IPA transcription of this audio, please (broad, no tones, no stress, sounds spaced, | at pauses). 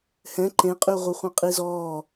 h ɛ̃ ǃ ẽ qʼ y ʁʷ œ χʷ ẽ qʼ i z ɔː